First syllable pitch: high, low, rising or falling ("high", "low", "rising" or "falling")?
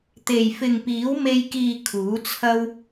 low